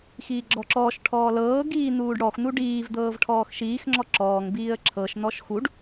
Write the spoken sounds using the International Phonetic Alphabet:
x iː ɡ͡ǁ ɔ ǁ ɔː ʃ ʈʰ ɔː l ɤː ɡ iː n̪ uː ɖ ɽ ɔ x n̪ u ɖ iː v d̪ ɤː v ʈʰ ɔː x ʃ iː x ŋ͡ǁ ɔ ǁ ɔː ŋ b iː ə̯ ǁʰ ɤ ʃ n̪ ɔ ʃ x u ɖ

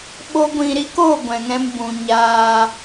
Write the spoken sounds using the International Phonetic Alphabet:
ɓ o˦ ɡʷ ĩ˧ ɾ i˦ k oː˦˨ ɡʷ ɛ̃˨ ŋ ɛ̃˧ m b ũ˨ ɲ aː˧

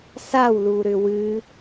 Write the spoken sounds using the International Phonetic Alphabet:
s a w l u ɾ ʏ w ɨ

